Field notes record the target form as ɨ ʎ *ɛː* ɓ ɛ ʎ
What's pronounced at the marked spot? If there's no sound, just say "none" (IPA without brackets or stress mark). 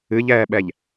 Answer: ɛː